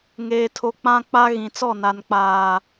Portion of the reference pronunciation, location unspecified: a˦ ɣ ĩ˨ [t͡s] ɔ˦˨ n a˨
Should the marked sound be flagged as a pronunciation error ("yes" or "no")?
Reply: no